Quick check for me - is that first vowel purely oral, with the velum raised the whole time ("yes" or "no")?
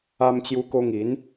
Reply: yes